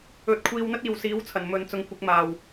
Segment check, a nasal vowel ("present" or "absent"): absent